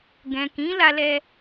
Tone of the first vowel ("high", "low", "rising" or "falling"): low